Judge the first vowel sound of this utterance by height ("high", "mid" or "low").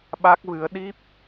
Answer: low